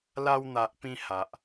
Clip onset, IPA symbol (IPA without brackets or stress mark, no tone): l